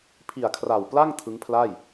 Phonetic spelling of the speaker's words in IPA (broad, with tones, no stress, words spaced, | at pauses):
pʰi˨˩a̯kʰra˨˩w pla˥˩ŋ tʰɯ˦˥ŋpʰla˥˩j